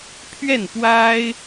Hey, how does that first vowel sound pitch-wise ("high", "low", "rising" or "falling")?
falling